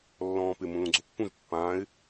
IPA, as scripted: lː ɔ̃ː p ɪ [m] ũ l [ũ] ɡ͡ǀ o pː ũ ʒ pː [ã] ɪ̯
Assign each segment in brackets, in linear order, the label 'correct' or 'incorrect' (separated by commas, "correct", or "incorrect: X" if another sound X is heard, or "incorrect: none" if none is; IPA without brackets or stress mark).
correct, correct, incorrect: ãː